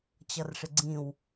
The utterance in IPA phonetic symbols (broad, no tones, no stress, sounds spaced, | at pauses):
t͡ɕ ʌ r ʂ ɪ ɡ͡ǀ ĩ w